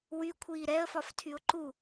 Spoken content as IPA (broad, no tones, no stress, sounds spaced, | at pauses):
w y kʷʰ iː ɾ ɛ ə̯ f ɒ f tʰ y ʊ̯ ǃ u